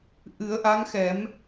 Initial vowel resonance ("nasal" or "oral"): oral